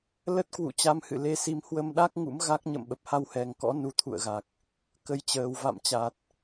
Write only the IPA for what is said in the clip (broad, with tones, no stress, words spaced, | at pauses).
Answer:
lə˦˥t̚kwṵ˧˨ t͡ɕa˧mhɨ̰˧˨le˧si˨˦m hwə˧mɗa˦˥k̚ ŋṵ˧˥mɣa˦˥k̚ɲə̰˧˨m ɓə˨˩p̚ha˧whɛ˨˩ŋ kɔ̰˧˥ nu˨˦t̪ʰṵ˧˨ə̯ɣa˨˩k̚ | kə˨˦jt͡ɕəː˨˩w va̰˧˨mt͡ɕa˨˩t̚